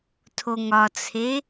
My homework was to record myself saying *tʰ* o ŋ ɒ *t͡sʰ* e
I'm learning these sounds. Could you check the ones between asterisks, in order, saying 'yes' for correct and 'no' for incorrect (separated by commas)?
yes, yes